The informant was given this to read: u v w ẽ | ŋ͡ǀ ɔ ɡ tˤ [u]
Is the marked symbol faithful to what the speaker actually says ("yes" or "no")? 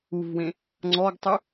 yes